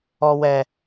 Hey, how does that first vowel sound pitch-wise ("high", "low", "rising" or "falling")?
high